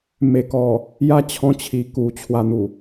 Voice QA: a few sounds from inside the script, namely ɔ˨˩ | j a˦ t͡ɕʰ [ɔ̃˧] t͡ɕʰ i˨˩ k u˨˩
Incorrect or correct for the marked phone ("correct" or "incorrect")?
correct